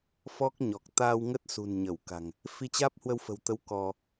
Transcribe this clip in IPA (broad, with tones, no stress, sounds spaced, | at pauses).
f ɔ˦˥ k̚ ɲ ɔ˨˩ k̚ t̪ aː˧ w ŋ ə˦˥ t̚ s ṳ˨˩ n ɲ ə˧˩ w k a̤˨˩ ŋ | f i˧ t͡ɕ aː˦˥ p̚ h w ə˧ w f ə̤˨˩ w t̪ ə˨˦ w k ɔ˧